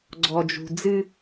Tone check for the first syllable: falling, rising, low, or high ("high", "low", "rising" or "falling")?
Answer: low